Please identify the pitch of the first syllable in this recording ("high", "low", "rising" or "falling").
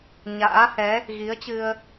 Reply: rising